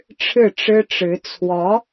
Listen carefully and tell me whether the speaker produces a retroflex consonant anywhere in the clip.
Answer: yes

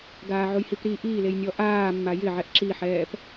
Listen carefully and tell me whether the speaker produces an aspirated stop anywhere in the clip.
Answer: no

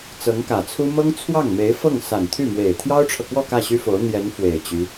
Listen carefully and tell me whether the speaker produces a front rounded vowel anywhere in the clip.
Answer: yes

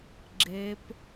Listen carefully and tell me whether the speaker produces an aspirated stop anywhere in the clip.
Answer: no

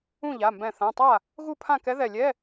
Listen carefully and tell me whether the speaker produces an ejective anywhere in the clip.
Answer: no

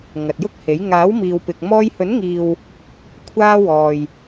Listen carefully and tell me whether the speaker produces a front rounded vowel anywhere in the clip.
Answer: no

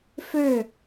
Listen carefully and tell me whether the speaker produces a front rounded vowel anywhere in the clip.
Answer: yes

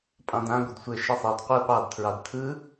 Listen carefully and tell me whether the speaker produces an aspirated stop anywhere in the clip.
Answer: yes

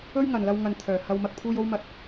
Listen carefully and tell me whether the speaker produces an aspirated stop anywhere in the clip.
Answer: yes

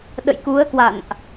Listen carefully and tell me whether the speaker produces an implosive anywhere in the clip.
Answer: yes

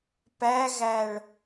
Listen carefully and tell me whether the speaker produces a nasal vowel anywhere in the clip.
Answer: no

